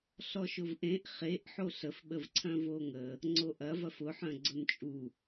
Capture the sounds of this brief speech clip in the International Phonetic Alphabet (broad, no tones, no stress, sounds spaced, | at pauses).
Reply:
ɬ ɔ ʃ ʊ v ʔ ẽ ʔ χ e ʔ ħ o ɬ ə f ɓ ə v ǀʰ œ̃ v o ŋ ə | ŋ͡ǀ o ʔ ɐ v ɐ f ʊ ħ œ̃ ɡ͡ǀ ʊ n t͡ʃʼ u